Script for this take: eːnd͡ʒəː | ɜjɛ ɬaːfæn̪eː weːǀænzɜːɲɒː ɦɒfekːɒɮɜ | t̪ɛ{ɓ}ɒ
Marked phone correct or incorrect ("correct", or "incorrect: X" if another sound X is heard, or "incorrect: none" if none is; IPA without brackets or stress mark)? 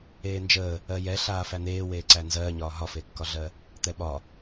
correct